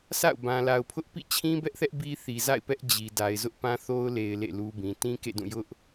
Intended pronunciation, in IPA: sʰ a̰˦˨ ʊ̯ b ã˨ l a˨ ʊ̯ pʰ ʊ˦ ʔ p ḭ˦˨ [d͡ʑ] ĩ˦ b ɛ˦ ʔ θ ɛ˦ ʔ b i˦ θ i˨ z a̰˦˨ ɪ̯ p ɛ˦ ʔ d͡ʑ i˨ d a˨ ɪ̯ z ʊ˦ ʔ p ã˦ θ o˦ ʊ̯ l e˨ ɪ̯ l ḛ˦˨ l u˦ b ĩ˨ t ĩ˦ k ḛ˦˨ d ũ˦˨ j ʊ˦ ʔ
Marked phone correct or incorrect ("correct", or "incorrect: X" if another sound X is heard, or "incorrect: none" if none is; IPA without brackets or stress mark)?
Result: incorrect: t͡ɕʰ